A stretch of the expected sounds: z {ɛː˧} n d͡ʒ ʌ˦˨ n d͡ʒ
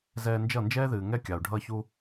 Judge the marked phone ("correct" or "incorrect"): correct